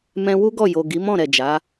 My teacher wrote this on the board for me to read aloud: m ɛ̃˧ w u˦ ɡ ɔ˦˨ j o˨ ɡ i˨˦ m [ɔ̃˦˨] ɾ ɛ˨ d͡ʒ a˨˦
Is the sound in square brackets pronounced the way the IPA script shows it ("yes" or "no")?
yes